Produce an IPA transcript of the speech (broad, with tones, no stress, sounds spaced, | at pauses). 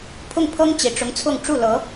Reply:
pʰ ʊ˥˩ ŋ pʰ ɤ˥ ŋ t͡ɕ i˨˩ ʈ͡ʂ ʊ˧˥ ŋ t͡sʰ ʊ˥˧ ŋ ʈ͡ʂ u˥˩ l ɤ˧˥